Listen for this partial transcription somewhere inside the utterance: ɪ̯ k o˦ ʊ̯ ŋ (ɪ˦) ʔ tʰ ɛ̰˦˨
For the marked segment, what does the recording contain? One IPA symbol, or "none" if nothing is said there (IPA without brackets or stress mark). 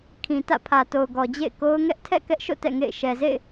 ɛ˦